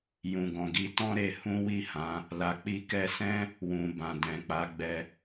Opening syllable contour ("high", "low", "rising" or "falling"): low